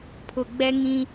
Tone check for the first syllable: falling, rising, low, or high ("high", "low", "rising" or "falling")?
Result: low